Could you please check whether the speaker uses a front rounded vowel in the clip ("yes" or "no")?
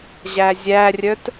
yes